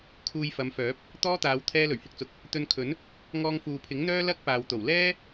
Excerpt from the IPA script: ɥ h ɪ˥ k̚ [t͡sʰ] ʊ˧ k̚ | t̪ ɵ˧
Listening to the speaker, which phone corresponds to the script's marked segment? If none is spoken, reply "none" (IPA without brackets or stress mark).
t͡s